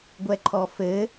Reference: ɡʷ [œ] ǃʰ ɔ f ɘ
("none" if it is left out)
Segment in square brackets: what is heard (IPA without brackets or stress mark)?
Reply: ɛ